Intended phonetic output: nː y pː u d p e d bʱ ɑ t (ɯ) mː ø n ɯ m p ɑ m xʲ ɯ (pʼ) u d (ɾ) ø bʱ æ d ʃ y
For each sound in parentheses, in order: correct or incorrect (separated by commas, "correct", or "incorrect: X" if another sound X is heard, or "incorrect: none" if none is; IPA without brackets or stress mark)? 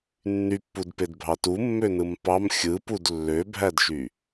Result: incorrect: u, incorrect: p, incorrect: lː